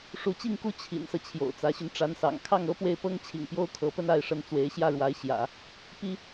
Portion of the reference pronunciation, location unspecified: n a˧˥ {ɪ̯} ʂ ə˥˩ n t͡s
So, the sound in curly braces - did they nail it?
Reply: yes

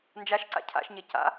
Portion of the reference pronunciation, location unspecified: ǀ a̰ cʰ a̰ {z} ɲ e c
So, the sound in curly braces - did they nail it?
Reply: no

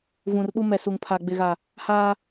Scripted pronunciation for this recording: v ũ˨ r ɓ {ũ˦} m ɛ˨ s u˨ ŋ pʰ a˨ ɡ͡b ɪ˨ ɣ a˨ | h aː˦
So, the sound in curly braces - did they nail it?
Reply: no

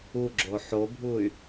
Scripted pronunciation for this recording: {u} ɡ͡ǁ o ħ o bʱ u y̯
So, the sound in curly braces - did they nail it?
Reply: yes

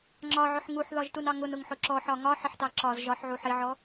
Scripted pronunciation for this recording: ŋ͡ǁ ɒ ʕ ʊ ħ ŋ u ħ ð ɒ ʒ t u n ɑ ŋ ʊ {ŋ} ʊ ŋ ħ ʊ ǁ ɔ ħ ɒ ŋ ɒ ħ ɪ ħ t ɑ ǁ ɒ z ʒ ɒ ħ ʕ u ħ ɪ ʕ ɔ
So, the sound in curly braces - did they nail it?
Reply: no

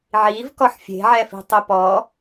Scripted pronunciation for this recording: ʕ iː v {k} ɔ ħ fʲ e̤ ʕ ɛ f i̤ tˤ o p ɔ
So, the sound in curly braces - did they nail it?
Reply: yes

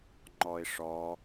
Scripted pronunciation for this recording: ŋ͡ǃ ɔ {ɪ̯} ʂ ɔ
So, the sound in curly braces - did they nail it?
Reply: yes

